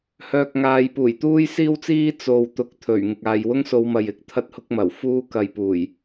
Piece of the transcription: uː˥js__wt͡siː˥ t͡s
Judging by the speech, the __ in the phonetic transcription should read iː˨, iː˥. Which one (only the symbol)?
iː˥